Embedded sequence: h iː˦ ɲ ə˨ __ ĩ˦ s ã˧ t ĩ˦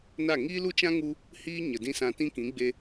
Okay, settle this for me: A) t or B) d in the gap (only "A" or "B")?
B